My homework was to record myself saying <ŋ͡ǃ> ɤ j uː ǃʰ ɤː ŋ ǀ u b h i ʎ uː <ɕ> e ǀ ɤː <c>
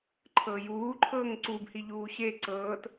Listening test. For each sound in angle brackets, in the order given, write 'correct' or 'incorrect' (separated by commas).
incorrect, correct, incorrect